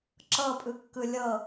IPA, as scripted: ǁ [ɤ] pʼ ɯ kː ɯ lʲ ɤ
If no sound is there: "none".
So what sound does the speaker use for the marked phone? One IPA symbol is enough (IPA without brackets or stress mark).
ɤ